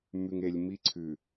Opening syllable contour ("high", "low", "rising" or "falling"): low